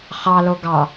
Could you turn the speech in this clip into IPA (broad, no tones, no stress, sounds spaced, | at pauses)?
χ ɑ l o ɡ ɑ